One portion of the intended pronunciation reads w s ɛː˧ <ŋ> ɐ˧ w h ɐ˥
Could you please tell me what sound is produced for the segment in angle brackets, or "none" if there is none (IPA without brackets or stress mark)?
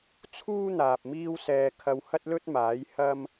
kʰ